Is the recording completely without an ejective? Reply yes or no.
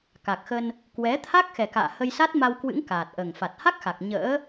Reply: yes